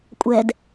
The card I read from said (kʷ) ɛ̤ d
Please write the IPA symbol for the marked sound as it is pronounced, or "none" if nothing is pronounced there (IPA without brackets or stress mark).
kʷʼ